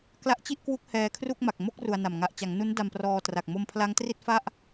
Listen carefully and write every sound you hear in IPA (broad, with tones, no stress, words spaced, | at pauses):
kla˦˥ʔt͡ɕi˥˩ʔkwu˦˥k̚ hɛː˧kʰru˥˩k̚ma˨˩k̚ mo˥˩k̚ ru˧a̯na˨˩m ŋa˨˩ʔt͡ɕa˩˦ŋnu˦˥n da˧mprɔː˧ tra˨˩k̚ mo˧mpʰla˦˥ŋtri˥˩t̚ fa˥˩ʔ